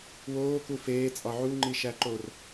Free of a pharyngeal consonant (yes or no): no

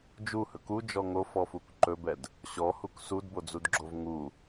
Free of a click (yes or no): no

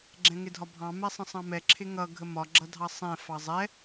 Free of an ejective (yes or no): yes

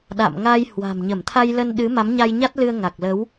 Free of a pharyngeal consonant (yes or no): yes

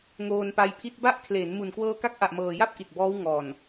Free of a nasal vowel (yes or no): yes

